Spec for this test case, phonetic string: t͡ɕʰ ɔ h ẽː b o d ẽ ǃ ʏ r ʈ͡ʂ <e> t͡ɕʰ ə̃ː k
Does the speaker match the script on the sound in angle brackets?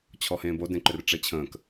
yes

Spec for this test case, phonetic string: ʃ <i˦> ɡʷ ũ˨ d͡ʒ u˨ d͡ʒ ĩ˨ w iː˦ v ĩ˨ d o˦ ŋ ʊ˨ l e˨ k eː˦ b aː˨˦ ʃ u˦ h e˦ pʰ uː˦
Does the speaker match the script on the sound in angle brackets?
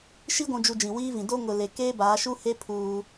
yes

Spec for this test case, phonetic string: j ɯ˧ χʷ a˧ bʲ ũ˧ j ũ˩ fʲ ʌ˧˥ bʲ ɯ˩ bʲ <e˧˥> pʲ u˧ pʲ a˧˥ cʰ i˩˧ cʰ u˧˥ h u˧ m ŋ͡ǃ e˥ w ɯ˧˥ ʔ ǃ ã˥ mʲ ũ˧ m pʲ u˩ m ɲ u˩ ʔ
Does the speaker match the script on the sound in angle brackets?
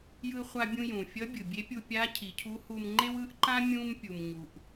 yes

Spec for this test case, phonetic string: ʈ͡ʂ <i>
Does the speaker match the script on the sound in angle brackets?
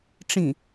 no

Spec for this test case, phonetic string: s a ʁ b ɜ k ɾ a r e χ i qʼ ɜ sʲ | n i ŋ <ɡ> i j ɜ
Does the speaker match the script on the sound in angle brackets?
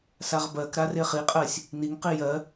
no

